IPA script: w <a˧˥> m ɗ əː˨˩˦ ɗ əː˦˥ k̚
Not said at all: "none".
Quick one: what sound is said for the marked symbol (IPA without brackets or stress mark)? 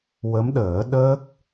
ə˧˥